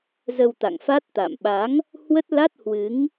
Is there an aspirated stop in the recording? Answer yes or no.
no